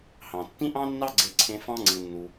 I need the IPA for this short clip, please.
hɑ̃˩ tːĩ˥ʔɑ̃˥nːɑ˥ ɡ͡ǀe˦ǀʰẽ˦ fɑ̃˦ŋ͡ǀɯ˨nːu˨

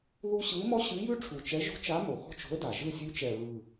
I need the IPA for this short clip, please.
ðu˥ ɕɯ˧˥ɪ̯mɔ˥ ɕʉ˧˥jʉ˥ ʈ͡ʂʰu˨˩t͡ʃɛ˧˥ʒo̤˥t͡ʃa˧˥ mo˨˩xɔ̤˥t͡ʃo̤˧˥ə̯da˨˩ ʒɯ˦˨sʲʉ˧˥t͡ʃɛ˨˩ɹɯ˨˩

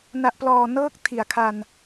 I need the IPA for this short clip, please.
na˨˩ʔplɔː˨˩ nɤː˦˥k̚ tʰi˩˦a̯kʰa˧n

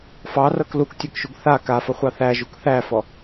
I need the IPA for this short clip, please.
fɑrɤk luktʲɤkʃuɡ θa kafəχʷɑ θæʒuk θæfɔ

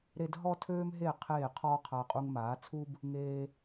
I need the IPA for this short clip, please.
ɾe˧d ɦɔ˦tʰøː˦mɦe˦˨ qʰeː˦˨qʰɔː˦qʰa˧ qʼu˧ŋmaː˨˦t͡sʰu˦b | ŋeː˧

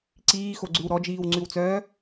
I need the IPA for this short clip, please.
ǀiːxoɡ͡ǀʉw ɾɔd͡ʒiːwŋ͡ǀʉwt͡sœː

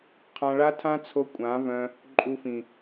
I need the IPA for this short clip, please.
qʰã˧ɭa˦tʰã˦t͡sʰo˧ kʷʼã˨˦vœ̃˧ | ǃʼu˧fĩ˨

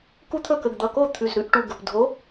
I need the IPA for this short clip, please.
ku˦t̪ʰɵ˥˩ kə˩˧˩ɡd̪ʌ˩˧˩ko˥˩ t̪ʰʉ˩˧˩z ɾʉ˨˥ʔʈu˩˧˩ɡə˩˧˩p dʱo˨˥

